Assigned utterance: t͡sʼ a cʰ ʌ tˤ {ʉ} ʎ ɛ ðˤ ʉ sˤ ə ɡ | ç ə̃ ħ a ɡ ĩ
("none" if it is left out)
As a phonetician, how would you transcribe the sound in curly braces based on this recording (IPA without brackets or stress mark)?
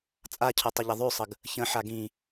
ə